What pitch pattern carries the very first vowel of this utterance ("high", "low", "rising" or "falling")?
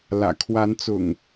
low